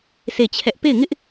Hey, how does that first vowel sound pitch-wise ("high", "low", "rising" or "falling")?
falling